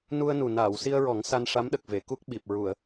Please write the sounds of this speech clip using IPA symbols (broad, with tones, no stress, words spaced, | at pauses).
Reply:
nu˧ə̯nu˨˩ naː˨˩˨wsi˧ə̯ɹɔ˨˩˦ŋ sa˧nʂa˧˥mɗə˨˩k̚ ve˨˩˨ku˦˥k̚ɓi˨˩p̚ ɹu˨˩˨ə̯